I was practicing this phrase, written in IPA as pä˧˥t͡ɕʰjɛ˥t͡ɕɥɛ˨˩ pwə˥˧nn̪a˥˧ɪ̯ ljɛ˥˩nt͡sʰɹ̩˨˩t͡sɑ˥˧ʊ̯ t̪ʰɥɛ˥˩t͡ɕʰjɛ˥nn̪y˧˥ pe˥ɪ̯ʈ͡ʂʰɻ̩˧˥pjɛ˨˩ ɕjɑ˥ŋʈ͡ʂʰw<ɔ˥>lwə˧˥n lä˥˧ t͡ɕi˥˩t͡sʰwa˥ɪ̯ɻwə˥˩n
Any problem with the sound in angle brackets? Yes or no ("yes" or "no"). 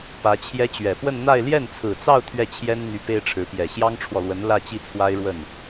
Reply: yes